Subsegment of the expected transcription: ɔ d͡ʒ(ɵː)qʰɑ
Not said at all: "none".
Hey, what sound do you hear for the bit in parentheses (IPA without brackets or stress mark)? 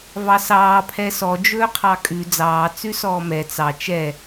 ɵː